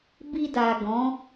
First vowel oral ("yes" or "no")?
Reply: yes